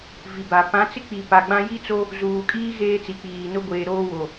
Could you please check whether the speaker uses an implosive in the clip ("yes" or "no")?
no